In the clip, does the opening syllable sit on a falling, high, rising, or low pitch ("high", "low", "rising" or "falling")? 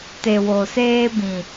low